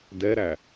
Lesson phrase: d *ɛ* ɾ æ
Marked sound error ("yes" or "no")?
no